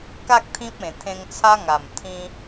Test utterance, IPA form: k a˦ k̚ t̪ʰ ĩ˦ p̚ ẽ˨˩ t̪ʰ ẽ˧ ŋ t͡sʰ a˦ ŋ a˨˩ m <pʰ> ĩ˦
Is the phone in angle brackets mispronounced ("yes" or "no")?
yes